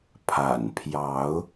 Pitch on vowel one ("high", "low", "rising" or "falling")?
low